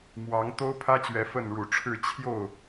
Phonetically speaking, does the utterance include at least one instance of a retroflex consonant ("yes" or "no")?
yes